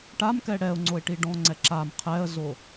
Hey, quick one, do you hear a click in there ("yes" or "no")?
yes